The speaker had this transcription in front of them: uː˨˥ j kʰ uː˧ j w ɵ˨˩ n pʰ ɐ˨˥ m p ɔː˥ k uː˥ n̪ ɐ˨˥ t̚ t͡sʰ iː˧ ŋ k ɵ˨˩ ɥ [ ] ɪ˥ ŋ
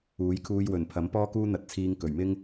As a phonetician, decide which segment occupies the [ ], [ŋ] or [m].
m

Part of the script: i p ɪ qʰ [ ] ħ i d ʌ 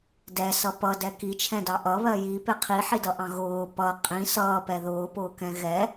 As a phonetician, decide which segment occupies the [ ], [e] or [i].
i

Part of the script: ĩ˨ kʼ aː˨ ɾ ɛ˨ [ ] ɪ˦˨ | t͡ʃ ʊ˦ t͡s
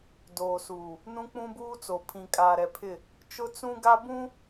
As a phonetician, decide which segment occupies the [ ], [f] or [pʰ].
pʰ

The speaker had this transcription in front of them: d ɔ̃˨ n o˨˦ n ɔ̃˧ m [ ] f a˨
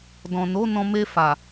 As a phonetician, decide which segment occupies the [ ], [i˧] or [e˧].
e˧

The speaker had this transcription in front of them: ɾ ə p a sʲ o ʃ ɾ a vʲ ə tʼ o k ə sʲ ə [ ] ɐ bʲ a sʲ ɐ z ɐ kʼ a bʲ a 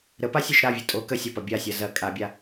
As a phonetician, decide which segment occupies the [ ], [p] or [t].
p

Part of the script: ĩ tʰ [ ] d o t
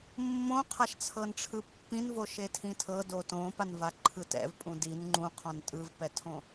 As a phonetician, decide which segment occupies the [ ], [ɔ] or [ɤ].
ɤ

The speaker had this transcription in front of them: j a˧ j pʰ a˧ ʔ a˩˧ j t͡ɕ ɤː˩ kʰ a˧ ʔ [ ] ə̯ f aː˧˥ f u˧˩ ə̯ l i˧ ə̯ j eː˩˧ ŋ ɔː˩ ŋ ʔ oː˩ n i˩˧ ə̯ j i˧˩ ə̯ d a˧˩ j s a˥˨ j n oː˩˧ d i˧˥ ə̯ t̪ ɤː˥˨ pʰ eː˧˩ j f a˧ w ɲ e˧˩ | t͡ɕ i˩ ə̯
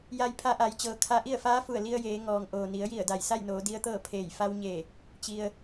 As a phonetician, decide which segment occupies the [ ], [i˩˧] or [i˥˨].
i˥˨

